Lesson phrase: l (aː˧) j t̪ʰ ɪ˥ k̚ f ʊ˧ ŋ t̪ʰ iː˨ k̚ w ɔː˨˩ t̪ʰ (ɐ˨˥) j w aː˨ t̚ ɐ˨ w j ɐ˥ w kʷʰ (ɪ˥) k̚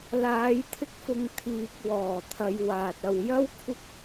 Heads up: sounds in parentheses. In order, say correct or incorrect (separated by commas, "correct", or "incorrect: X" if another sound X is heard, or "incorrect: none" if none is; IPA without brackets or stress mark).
incorrect: aː˨˧, incorrect: ɐ˨˧, correct